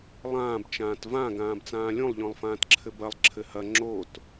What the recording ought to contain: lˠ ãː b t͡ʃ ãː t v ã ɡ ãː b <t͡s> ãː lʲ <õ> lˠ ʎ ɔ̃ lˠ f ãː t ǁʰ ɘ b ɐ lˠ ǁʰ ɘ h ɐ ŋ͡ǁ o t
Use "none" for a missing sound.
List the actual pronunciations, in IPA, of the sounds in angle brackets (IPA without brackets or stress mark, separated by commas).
t͡s, õ